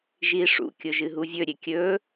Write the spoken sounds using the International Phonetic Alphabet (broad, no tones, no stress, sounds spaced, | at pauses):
ʒ i ʂ ṵ kʲ ʊ ʒ ɨ ɦ u vʲ ɵ ɾʲ e kʲ ɵ